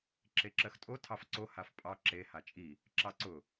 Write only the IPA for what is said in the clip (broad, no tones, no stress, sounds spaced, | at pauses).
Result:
ǁ e ǁ ɜ x tʼ o tʰ ɑ f ǀ o h a f pʼ ɑ ǁ e h a t͡ʃʼ i | ǁ ɑ ǀ ʊ